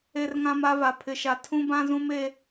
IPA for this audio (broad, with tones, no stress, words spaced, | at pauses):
e˦rŋã˦ma˦va˨ pʰɪ˨ʃa˨ tʰũ˦bã˦zũ˦m e˦